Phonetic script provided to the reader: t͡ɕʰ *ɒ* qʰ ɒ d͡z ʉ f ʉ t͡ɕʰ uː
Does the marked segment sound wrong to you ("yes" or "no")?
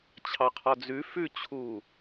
yes